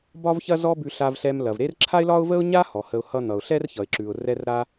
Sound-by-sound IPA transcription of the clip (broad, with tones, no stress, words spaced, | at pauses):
bɒ˥vçɐ˥zɔ˥bʉ˧ ɬa˧vɬɛ˧mlɐ˩v ɾe˥r ǁʰa˥ɪ̯lɒ˥ʊ̯və˥ʊ̯ ɲa˥ hɔ˩hə˧ʊ̯hʌ˥n̪ʌ˩ʊ̯ ɬɛ˥rçʌ˩ɪ̯ǁʉ˩ʊ̯ rɛ˥rɾa˥